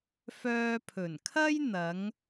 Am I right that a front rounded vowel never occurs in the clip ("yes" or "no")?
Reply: no